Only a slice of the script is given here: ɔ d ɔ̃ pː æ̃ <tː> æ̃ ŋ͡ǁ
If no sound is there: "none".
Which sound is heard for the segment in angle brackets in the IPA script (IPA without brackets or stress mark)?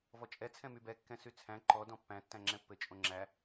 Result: tː